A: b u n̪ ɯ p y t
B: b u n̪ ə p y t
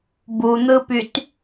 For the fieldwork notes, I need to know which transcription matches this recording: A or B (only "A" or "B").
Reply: A